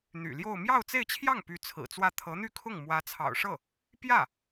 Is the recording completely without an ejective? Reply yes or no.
yes